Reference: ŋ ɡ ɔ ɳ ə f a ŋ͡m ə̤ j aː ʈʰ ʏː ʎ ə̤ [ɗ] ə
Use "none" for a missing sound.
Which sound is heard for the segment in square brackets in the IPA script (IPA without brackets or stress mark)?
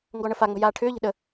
ɗ